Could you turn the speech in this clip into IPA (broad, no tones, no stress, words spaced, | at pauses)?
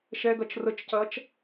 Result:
ʃɛɡɐt͡ʃ rət͡ʃcɐt͡ʃ